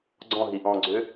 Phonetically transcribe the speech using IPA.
ɡ͡ǀ ɔ̃ ɦ i ʔ ɔ̃ ɡ͡ǀ ʏ

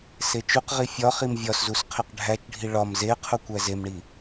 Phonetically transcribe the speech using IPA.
s e t͡ʃ u q ʁ i fʲ ɒ χ i m vʲ ɒ s z u s qʰ e q ɖʱ æ t͡ʃ ɖʱ i ɭ ɒ m z e qʰ u kʷ æ z e m ɳ i

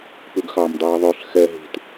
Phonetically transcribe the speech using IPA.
p ʉ ɡ x ɑ m dˤ iː ðˤ ø ɬ x ɛ ɦ i̤ t

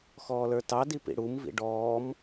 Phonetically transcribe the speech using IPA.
x ɔː l ə˞ t ɑ d i p ḭ ɽ u m v ḭ ɖ ɔː m

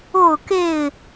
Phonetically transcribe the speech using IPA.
o˥˨ ʊ̯ k e˥˨ ɪ̯

